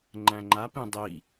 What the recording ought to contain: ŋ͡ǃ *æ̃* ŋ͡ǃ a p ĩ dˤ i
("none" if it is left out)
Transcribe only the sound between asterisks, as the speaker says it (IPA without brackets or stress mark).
æ̃